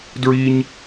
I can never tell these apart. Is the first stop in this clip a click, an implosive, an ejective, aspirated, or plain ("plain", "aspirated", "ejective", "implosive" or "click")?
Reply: plain